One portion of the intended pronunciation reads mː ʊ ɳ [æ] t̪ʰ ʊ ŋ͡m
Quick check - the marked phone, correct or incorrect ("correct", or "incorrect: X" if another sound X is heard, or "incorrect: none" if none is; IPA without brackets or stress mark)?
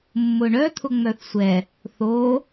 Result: incorrect: œ